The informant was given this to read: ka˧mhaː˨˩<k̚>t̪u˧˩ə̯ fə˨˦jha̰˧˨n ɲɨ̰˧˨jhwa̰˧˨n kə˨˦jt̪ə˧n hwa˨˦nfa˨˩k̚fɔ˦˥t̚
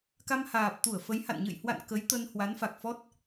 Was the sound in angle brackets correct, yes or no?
no